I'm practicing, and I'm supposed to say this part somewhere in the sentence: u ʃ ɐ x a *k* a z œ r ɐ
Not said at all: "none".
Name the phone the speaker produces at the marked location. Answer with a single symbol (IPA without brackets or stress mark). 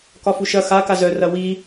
k